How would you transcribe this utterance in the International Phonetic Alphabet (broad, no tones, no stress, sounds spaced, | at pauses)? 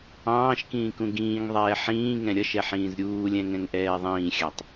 ɑ̃ː ʃ k ĩː k ũ ɡ ĩː ŋ ðˤ ɛː ħ ĩː ŋ ɛ̃ ɾʲ ʌ ʃ ɛ ħ ĩː z ɾʲ uː lʲ ɛ̃ ŋ ɛ̃ ŋ ʔ ɛː ðˤ ĩː xʲ ɑ tˤ